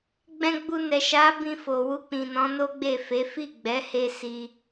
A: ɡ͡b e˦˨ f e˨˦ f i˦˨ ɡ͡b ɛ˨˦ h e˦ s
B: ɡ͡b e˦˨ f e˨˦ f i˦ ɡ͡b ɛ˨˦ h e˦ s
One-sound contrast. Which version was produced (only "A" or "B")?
A